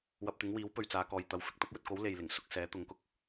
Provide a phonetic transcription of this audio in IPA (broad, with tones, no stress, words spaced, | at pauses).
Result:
wɐ˧p̚t̪ɪ˨˥ŋwiː˨˥wpɵ˨ɥ t͡saː˨˧kɔː˨jt̪ɐ˨˧w fɪ˨k̚t̪ɐ˨˥p̚wɵ˨t̚ko˨˥w le˨jlɪ˨˩ŋsʊ˧k̚sɛː˨˥ t̪ʊ˨˥ŋkʊ˨k̚